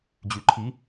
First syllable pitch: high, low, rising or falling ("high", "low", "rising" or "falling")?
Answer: low